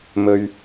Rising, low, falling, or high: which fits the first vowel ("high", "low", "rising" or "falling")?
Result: low